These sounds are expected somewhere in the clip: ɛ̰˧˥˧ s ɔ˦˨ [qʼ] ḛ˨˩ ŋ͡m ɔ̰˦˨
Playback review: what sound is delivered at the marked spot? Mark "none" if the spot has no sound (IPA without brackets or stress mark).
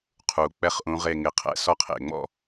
qʰ